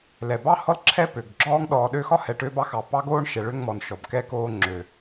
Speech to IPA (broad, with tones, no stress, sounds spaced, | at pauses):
l ɛ˩ b ɑ˥ h ɔ˥ l ǁʰ ɛ˥ p ø˩ ɡ ɡ͡ǁ ɔː˦ ŋ ɗ ɔː˨ ɗ ø˦ x ɒ˥ h ɛ˨ ʈ ø˦ b ɑ˦ x ɑ˨ p ɑ˥ ɡ oː˥ ɳ ʃ ɛ˨ ɭ ø˦ ŋ m ɔ˩ n ʃ ɔ˩ b k ɛ˥ k oː˦ ŋ͡ǁ ø˩